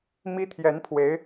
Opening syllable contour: high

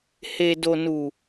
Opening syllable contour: low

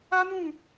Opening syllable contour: high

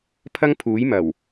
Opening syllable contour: high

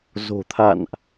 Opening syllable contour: low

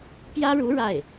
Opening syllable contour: high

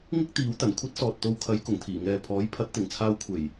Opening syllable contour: high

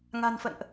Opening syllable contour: low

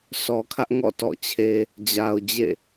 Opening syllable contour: low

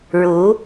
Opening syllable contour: rising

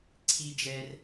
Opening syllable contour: high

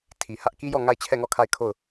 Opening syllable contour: low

